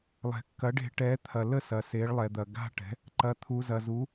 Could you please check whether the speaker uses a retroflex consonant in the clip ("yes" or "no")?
yes